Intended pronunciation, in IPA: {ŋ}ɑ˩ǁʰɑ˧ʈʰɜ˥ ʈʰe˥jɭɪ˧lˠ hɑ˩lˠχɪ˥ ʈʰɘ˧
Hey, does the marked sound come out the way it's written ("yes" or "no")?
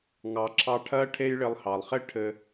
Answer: yes